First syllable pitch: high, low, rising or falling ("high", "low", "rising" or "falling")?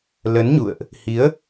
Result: rising